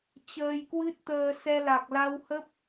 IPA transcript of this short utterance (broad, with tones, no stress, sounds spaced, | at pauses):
t͡ɕ əː˧ j k w ɨ˦˥ t̚ t̪ əː˧ s ɛ˧ l a˨˩ k̚ l a˧ w h ə˦˥ p̚